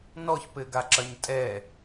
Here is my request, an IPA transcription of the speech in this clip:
n ɔ ç p ɘ ɡ a ǁ ɐ ɲ tʼ ɛ

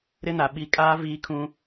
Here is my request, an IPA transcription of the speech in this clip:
ɾ ɪ˦ n a˨ ɓ i˦ kʼ aː˦ v iː˦ kʰ ũ˦

